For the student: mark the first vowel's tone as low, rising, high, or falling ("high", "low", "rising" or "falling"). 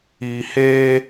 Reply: low